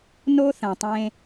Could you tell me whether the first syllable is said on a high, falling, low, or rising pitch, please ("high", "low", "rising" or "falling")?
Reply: high